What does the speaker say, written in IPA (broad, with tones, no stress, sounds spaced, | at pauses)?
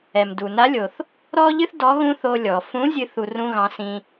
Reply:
ɛ˩ m d u˩ n a˧˥ lʲ o˩ θ | ɾ ɔ˥ ʎ ɨ˥ θ d ɔ˧˥ ɣ ũ˥ θ o˧ lʲ ɔ˩ f ũ˧˥ zʲ ɨ˥ θ u˧ r ũ˧ ɣ ɑ̃˩˧ s ĩ˧